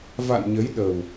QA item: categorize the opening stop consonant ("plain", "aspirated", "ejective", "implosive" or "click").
implosive